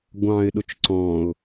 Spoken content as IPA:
ɡʷ ɑ̃ː ɪ̯ ɗ ʊ t͡ʃ ǀ ɔ̃ː ʊ̯

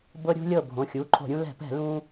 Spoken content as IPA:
b ɤ˧ ɾʲ ṳ˧ lʲ ɤ˧˩ bʱ õ˩˧˩ xʲ uː˩˧˩ ǃʰ o̤˧˩˧ ɾʲ ũ˧ l ɛ̤˧˩˧ p ɛ̤˧˩˧ l ũː˧

